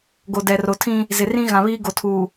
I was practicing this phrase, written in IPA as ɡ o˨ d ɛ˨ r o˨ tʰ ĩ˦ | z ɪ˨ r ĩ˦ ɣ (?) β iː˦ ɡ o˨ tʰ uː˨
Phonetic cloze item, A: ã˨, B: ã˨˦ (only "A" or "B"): A